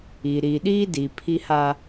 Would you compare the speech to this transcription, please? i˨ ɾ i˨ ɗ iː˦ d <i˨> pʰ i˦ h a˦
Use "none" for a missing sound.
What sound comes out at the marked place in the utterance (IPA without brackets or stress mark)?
i˨